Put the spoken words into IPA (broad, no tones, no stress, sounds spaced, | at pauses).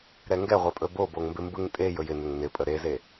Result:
ɾ ɛ ŋ ɡ ɛ ʁʷ ɛ pʼ ɵ b o b o ŋ m b ɪ m b ɯ ŋ tʼ e j ɵ j ɪ n ɪ ŋ n ɪ pʼ ə ɾ e z e